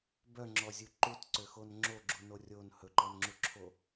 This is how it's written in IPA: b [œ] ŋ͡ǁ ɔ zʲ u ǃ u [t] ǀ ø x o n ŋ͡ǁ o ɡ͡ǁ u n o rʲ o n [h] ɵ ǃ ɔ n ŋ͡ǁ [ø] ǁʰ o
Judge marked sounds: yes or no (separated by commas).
yes, yes, yes, no